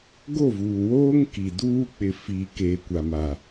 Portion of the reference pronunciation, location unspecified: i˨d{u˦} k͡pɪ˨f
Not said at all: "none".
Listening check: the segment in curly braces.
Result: uː˦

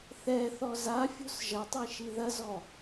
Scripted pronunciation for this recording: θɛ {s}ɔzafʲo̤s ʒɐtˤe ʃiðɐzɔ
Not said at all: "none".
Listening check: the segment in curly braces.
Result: θ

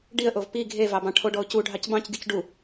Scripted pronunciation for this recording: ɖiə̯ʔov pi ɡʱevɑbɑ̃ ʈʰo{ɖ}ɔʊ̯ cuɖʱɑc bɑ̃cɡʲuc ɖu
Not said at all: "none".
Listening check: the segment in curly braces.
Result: ɖ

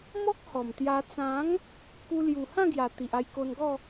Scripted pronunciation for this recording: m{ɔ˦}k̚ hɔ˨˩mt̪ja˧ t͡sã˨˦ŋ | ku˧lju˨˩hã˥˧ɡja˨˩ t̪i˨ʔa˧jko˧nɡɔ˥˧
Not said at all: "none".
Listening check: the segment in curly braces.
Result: ɔ˦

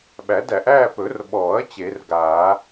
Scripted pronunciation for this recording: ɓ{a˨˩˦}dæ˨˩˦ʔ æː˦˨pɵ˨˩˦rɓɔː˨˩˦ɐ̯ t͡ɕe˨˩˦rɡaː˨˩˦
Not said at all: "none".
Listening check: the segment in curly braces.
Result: æ˨˩˦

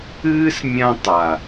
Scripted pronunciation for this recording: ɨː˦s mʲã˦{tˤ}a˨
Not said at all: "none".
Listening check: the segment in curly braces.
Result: tˤ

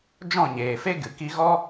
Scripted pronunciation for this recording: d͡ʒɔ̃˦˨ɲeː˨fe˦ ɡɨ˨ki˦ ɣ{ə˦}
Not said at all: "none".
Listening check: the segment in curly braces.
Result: ɔ˦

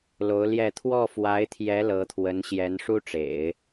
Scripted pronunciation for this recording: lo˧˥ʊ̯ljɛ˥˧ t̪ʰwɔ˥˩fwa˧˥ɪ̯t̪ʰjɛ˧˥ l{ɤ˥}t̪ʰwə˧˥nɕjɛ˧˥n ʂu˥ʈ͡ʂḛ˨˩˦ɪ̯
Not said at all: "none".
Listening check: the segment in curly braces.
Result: ɤ˧˥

